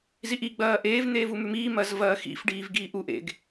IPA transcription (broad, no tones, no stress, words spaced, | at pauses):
ziʔiɡ͡bɐː ʔeːvn̪eːvu mʉmiːmɐːz vɐːxḭfɖiːv ɡiːʔuʔ ḛɡ